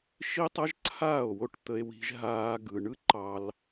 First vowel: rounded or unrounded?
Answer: unrounded